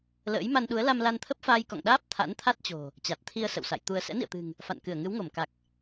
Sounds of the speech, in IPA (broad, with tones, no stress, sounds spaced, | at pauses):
l ə̰ː˧˥ j m a˧ n ɗ u˨˦ ə̯ l a˧ m l a˧ n t̪ʰ ə˦˥ p̚ f aː˧ j k ɔ̰˧˨ ŋ ɗ aː˦˥ p̚ t̪ʰ a̰˧˥ n t̪ʰ a˦˥ t̚ t͡ɕ o̤˨˩ | t͡ɕ a˨˩ t̚ t̪ʰ i˧ ə̯ s ə̰˧˨ w s a̰˧˨ j t̪ u˧ ə̯ s ɛ̰˧˥ n ḭ˧˨ ə̯ t̪ ɨ̤˨˩ ŋ | f a̰˧˨ n k ɨ˧˩ ə̯ ŋ ɨ˨˦ w ŋ o˧˩ m k a˨˩ k̚